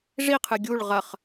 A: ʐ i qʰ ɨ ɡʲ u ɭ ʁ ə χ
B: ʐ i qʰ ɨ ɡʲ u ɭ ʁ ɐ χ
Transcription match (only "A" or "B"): B